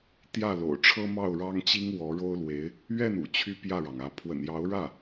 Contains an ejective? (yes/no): no